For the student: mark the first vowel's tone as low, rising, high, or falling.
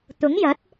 rising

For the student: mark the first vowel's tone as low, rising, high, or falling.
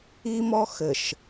high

